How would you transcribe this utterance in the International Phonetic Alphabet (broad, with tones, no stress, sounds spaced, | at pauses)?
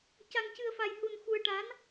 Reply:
c a˧ ŋ c ɨ˧ ə̯ f a˧ j h u˧ n x u˧ ə̯ ʈ a˧˥ n